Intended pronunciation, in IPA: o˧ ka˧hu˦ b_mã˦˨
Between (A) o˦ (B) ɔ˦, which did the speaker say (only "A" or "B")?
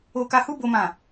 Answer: A